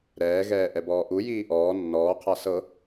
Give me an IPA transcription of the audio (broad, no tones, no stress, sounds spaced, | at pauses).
ɾ ɛː ɣ ɛː ʔ ɛ b ɔː ʔ u j iː ʔ ɔː nː ɔː qʰ a s ɤ